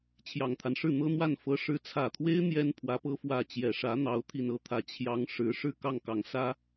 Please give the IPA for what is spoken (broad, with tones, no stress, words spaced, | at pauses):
t͡ɕʰjɑ˨˩ŋt̪ʰa˦nʂɻ̩˥˩ n̪ɤ˥n̪wa˥˩n fɤ˧˥ʂɻ̩˧˥t͡sʰä˨˩t̪ʰwe˥ɪ̯ n̪jɛ˥n pʰwä˧˥pɤ˥ fwä˥˩ t͡ɕjɛ˨˩ʂä˧˥n̪ɑ˧˥ʊ̯ t̪ʰi˨˩nɤ˧˥t̪ʰä˨˩ t͡ɕʰjɑ˧˥ŋ ʂɻ̩˧˥ ʂɻ̩˥˧ kɑ˥˩ŋkɑ˨˩ŋsä˥